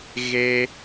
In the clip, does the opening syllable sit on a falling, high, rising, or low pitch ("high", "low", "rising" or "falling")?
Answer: high